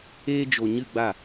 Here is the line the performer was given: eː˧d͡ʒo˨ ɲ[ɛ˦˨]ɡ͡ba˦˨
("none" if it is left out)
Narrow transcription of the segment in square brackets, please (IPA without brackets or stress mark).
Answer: ɨ˦˨